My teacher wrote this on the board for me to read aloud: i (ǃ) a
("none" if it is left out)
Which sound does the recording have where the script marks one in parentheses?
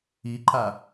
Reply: ǃ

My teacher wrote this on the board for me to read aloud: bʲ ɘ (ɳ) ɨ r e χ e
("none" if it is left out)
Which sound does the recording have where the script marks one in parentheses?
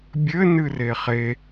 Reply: n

